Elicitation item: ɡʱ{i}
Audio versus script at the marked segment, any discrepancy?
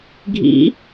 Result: yes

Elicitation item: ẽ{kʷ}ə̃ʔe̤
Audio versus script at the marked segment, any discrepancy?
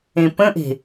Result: yes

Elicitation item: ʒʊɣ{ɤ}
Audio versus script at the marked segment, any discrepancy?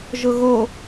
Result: yes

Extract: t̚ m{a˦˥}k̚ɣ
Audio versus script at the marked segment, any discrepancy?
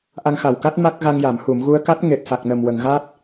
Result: no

